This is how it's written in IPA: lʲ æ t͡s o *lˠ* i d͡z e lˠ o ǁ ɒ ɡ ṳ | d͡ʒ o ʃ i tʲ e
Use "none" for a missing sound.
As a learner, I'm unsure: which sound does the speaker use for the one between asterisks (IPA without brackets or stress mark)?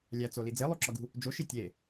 l